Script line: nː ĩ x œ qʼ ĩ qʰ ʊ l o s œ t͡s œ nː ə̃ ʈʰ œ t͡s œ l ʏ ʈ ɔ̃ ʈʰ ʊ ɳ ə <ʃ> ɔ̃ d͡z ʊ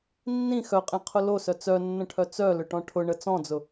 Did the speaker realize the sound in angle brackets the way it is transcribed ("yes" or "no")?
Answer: no